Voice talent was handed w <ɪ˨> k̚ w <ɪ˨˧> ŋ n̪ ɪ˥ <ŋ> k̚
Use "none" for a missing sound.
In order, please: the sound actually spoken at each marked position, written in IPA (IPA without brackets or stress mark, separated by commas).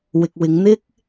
ɪ˨, ɪ˨˧, none